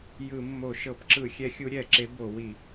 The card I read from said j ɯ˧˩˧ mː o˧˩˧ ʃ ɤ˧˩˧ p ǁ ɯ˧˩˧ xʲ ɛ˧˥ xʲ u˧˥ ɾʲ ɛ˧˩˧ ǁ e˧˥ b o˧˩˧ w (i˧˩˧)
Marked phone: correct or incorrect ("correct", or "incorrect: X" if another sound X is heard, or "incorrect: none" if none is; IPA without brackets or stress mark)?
correct